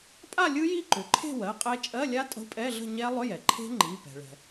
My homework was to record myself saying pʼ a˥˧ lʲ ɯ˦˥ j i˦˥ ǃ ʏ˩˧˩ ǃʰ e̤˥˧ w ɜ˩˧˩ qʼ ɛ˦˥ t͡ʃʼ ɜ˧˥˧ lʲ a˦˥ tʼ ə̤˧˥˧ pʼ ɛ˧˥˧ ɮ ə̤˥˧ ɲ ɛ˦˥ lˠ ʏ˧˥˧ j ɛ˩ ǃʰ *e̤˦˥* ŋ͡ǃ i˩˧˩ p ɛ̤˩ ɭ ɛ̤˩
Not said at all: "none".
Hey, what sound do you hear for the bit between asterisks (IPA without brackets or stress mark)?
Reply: e̤˦˥